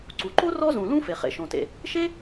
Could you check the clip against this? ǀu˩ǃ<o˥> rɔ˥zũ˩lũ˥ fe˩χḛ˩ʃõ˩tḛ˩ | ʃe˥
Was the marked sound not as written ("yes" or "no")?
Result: no